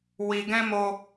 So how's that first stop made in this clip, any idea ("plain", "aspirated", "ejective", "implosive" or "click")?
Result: plain